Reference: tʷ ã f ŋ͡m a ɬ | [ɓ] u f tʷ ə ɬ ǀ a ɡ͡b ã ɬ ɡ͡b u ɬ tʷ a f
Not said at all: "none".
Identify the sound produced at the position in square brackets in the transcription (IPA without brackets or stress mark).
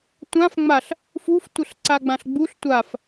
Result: f